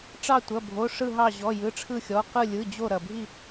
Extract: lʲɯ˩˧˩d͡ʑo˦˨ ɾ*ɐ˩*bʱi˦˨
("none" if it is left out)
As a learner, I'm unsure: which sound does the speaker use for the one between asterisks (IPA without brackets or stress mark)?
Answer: ɐ˩